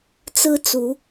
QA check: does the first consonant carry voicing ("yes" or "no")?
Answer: no